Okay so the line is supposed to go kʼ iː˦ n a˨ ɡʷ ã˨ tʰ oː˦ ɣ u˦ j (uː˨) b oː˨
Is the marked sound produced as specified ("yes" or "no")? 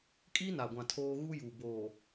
yes